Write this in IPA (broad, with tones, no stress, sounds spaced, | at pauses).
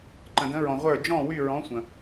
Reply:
ǃ ə̃˨ d ə̃˧˥ ɹ ɔ̃˨ ʁʷ ə˞˦˨ d͡ʒ ɔ̃˦˨ w y˦˨ ɹ ɔ̃˧˥ sʷ ə̃˨